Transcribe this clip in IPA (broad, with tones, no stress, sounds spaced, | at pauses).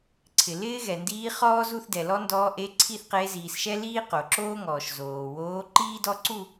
ǀʰ ɪ˩ l ɪː˥ ɣ ɛ˩ n d iː˧˥ χ ɔː˥ z u˥˧ θ d ɛ˩ l ɔ˥ n d ɔː˧˥ ʔ e˧˥ ǀʰ i˥˧ θ q e˧˥ z iː˩ s ʃ ɛ˥ l iː˥ q o˩ ǁ oː˥ ŋ ɔː˩ ʃ z oː˩ w oː˧˥ ǃ iː˥ d ɔ˥ ǀ u˥˧